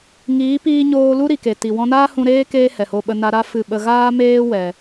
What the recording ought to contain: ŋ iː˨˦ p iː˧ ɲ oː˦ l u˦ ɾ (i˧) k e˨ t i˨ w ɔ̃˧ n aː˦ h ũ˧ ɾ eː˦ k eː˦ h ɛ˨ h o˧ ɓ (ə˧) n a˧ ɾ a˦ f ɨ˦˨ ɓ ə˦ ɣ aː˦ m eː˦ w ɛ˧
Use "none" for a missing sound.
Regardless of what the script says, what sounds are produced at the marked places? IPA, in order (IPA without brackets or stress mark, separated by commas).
i˨, ə˧